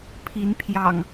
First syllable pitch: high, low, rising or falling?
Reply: rising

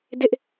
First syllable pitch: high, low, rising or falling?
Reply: high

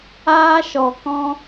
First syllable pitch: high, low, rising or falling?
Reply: high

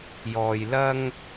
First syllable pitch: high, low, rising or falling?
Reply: low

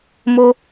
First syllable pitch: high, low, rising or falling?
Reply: high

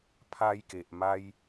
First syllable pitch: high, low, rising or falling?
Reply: high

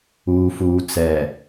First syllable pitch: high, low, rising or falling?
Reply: low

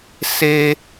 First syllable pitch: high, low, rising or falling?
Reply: high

